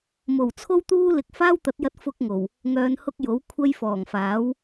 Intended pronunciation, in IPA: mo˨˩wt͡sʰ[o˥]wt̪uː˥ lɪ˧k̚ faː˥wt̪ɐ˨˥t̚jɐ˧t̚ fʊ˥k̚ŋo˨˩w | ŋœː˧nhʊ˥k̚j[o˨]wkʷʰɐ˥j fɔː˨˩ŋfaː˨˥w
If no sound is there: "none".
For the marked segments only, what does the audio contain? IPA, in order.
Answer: o˥, o˨˥

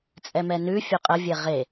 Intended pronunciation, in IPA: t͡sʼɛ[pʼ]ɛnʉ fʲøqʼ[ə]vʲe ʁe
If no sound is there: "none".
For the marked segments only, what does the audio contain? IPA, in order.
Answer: m, ə

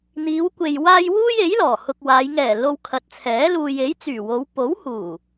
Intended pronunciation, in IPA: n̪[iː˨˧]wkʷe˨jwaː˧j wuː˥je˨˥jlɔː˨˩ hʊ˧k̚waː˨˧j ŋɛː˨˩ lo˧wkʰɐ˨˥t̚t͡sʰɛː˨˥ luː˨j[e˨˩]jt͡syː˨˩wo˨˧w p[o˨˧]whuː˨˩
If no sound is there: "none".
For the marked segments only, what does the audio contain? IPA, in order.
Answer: iː˨˧, e˨˥, o˨˥

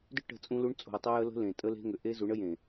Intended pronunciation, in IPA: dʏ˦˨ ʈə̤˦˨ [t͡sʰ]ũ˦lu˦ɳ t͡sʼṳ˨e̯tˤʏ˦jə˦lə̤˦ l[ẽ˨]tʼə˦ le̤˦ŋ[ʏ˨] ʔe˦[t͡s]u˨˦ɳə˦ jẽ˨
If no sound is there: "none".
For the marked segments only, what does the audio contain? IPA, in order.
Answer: t͡sʼ, ẽ˨, ʏ˨, z

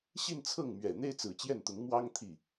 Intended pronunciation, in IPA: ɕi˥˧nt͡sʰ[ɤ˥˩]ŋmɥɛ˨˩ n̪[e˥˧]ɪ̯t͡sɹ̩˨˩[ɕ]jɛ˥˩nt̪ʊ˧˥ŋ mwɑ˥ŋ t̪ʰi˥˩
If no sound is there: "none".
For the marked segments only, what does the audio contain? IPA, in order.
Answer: ɤ˥˩, e˥, t͡ɕ

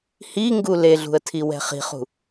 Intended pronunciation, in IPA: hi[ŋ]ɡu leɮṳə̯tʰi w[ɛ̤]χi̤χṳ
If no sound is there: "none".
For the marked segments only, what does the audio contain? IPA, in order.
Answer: ŋ, ɛ̤

